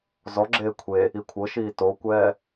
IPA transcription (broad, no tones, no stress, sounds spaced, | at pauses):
z ɔ ɡ͡ǁ eː kʷʰ e | i kʷʰ ɤ ʃ iː t o kʷ ɛː